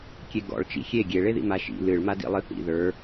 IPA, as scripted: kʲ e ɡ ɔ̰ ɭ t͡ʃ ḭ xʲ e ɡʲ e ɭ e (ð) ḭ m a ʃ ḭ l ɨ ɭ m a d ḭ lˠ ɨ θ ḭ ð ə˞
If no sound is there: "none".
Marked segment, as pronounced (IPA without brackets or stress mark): ð